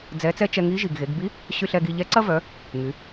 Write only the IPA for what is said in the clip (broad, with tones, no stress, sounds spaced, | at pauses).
d͡z ɛ˧˥ t͡s ɛ˥ t͡ʃ ɛ˧ ŋ i˧˥ ʒ i˩ ɡ ɣ e˩˧ ɡ b i˧˥ | ɕ y˧ ɬ ɛ˧ ɡ i˧ ʎ ɛ˧˥ ǀ ɐ˥ v œ˩˧ | ŋ y˩˧